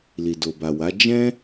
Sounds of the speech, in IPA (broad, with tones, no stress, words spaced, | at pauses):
li˨ do˨ba˨wa˨˦ d͡ʒɛ̃˦